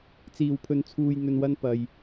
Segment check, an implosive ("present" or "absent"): absent